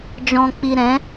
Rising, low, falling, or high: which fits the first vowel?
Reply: low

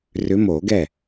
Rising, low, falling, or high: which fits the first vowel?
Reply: rising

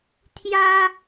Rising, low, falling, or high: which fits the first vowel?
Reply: high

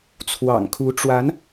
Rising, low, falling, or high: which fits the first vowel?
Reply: low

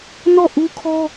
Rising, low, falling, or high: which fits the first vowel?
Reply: falling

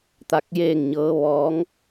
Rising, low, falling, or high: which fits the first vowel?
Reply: rising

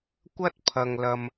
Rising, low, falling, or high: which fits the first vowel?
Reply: high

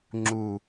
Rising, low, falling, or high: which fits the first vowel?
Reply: low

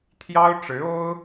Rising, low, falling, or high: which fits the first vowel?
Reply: high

